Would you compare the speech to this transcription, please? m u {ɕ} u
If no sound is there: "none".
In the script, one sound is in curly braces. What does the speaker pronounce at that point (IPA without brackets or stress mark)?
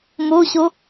ɕ